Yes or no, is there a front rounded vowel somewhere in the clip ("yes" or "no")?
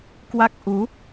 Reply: no